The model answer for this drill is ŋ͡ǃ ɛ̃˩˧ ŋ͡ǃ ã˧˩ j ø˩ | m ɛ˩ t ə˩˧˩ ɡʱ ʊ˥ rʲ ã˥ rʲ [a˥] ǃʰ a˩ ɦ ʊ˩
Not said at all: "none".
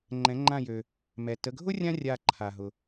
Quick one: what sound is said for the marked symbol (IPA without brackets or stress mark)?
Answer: a˧˩